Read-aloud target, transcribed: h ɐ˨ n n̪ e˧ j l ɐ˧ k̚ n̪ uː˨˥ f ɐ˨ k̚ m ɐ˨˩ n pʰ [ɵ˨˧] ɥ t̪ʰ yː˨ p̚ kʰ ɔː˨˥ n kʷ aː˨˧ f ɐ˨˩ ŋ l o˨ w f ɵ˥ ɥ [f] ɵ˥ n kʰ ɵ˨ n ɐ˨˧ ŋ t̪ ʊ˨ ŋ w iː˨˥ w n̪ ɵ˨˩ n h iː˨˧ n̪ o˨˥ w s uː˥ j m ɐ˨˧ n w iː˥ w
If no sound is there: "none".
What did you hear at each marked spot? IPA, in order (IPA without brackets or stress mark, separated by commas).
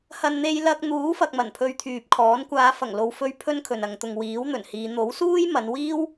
ɵ˧, pʰ